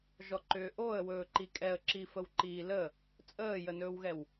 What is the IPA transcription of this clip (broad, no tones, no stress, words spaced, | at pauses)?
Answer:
ʒɔǃʏːʔoə̯wɵː ǃikʼɛə̯ǁi fəwǃiːlə | t͡sʼəːjənɵːwɣɛw